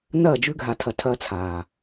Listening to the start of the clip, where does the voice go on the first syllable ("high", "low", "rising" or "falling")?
falling